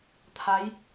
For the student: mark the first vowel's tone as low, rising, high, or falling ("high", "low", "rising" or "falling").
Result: rising